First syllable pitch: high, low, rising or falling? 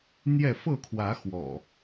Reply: falling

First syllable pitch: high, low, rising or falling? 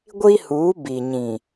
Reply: high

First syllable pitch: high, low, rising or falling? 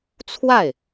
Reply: falling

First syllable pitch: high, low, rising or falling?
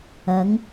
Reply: rising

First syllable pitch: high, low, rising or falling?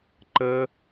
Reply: high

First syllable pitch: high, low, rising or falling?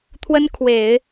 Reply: high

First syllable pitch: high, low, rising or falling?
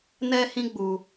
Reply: high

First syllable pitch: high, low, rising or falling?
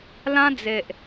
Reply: high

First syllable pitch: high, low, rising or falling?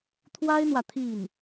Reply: high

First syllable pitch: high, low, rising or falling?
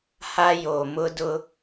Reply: high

